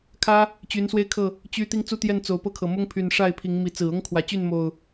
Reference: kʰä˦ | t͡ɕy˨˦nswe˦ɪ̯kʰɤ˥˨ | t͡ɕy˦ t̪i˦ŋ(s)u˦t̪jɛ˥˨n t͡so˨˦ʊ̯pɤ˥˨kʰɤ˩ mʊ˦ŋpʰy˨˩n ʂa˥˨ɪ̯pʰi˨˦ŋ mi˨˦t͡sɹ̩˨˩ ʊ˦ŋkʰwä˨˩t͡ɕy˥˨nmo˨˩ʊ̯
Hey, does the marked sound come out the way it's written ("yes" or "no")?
no